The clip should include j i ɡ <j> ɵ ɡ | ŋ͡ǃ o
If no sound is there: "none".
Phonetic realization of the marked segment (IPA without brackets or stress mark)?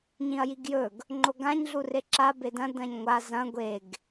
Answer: j